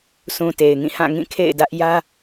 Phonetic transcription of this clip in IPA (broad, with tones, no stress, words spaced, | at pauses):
sʰũ˨ te˨ɪ̯ŋĩ˦˨ hã˦˨ŋĩ˦˨ kʰḛ˦˨ɪ̯dä˦ʔ jä˦